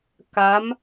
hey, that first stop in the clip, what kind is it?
plain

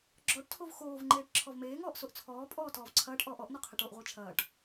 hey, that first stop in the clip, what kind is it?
click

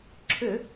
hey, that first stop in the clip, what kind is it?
click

